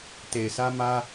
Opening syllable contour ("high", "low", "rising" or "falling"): low